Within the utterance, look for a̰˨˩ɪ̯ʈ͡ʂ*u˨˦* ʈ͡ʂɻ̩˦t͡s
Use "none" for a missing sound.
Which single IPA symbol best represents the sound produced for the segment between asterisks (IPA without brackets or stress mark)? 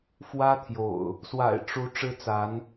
u˨˦